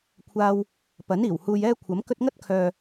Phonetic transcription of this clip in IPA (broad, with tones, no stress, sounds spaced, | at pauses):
kʷʰ aː˧ w | p ɐ˨˥ n iː˨˩ w h uː˧ j ɛː˥ kʷʰ ɐ˨˥ m k ɵ˥ t̚ ŋ ɐ˥ t̚ kʰ œː˨